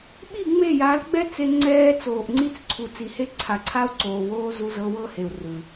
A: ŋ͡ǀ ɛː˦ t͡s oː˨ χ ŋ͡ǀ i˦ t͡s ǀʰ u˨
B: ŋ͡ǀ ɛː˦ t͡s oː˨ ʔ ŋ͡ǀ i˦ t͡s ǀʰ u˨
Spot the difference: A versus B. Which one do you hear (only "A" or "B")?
B